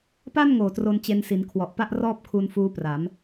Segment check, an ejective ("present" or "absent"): absent